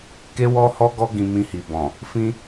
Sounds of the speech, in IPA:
k e˦ w ɔ˦ h ɔ˦ ɡ ɔ˦ ɡ ĩ˧ m ĩ˧ h i˨ b ɔ̃˨ | f ĩ˦

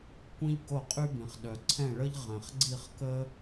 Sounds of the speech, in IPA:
kʷ ĩ˥ ʎ ɡ o˥˩ qʼ y˥ b ĩ˩ χ ɗ œ˩ ǀʰ ɛ̃˥˩ ɭ ə˥ ʎ ʁ ɛ̃˩ χ ɡ͡ǀ i˥˩ χ k ə˥

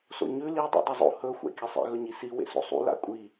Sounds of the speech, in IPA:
s o̰ ɲ ʉ l i dˤ ḭ dˤ ɵ zˤ o̰ h ɵ xʷ a̰ kʲ ɐ sˤ ḭ ɣ ɵ ɲ i s i w ḛ s o̰ sˤ ṵ l a̰ kʷʼ i

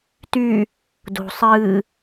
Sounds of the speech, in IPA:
t y | d o̤ sˤ ɨː

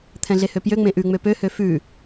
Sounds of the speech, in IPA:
t̪ʰ ɛ̃ ɮ e h ø p j ø ŋ͡m ẽ ʔ ʉ ŋ͡m ø p ø h ø f ʉ

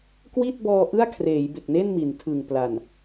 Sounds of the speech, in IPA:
k w i˥˩ t̚ b ɔː˧ ʔ ɯ˥˩ a̯ kʰ r eː˩˦ j b e˨˩ k̚ n e˥˩ n m i˩˦ n tʰ ɯ˨˩ ŋ p l a˨˩ n

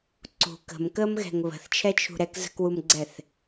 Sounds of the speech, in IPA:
ǀ ṳ k ə̤ m k əː m ɣ ɛ̤ ŋ β ə̤ θ t͡ʃʰ ɛ t͡ʃʰ ṳ ɾ ɛ k z ə̤ k w u m ɡ͡ǀ ɛ θ

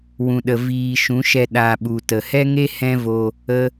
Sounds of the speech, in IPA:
w ũ˨ ɗ ə˨ v iː˨ ʃ ũ˨˦ ʃ ɛ˧ ɗ a˧ ɓ u˨ t ə˨ h ɛ˦ ŋ e˦ h ɛ̃˦ v o˧ | ə˦

